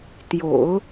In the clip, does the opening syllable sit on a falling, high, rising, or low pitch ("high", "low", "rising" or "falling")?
low